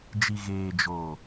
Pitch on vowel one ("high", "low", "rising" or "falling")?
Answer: low